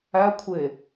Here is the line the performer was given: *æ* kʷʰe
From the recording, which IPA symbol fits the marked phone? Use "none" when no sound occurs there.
æ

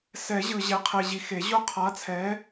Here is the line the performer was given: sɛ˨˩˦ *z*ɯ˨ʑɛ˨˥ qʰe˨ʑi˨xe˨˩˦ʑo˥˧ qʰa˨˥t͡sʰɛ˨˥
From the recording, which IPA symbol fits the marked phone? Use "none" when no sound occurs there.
ʑ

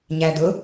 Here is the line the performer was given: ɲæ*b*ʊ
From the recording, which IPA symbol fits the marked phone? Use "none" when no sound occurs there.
d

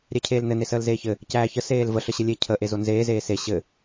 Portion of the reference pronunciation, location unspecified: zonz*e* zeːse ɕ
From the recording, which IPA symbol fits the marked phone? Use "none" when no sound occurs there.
eː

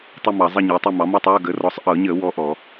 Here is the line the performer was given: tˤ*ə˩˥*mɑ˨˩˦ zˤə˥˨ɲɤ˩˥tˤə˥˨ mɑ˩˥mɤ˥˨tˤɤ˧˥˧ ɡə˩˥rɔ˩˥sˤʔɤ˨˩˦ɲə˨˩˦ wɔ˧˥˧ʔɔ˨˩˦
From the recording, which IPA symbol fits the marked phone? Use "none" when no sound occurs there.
ə˥˨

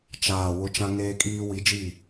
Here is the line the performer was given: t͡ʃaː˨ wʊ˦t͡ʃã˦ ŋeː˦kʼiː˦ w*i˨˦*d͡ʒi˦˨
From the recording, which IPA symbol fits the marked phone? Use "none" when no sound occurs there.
i˨˦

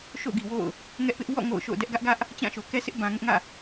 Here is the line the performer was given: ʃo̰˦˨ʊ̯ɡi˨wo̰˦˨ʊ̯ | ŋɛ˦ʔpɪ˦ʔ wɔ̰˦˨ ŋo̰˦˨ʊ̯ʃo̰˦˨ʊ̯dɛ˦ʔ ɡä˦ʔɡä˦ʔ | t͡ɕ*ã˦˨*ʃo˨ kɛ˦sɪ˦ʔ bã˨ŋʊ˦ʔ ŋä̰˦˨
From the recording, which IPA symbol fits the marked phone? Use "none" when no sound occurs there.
ã˦˨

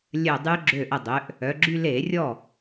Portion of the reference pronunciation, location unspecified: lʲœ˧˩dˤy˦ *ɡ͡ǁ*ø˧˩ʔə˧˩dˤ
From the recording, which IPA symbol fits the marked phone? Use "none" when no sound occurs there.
ɡ͡ǁ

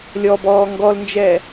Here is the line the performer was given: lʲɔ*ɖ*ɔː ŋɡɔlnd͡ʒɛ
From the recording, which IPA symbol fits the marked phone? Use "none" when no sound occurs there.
b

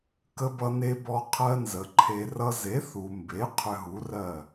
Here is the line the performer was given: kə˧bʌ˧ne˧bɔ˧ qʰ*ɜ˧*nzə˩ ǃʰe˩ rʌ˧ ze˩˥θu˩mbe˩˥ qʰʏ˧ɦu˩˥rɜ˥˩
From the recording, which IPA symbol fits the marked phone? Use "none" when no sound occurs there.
ɜ˧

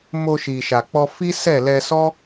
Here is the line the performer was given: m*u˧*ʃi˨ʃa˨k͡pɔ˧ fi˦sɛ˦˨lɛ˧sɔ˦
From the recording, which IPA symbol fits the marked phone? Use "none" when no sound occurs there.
o˧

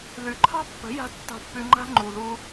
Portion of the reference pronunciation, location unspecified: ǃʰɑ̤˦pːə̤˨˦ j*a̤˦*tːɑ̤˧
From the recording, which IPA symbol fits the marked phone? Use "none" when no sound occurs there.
a̤˦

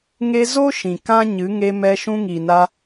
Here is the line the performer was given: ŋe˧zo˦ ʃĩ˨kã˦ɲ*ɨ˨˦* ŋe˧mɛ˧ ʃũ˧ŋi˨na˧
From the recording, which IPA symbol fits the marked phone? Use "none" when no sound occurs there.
ɨ˨˦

